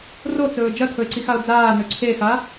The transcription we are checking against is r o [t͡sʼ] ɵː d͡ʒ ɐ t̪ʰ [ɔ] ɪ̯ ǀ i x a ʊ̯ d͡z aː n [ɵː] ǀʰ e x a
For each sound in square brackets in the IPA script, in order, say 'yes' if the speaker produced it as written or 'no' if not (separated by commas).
no, no, no